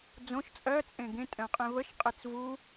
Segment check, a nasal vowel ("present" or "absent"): present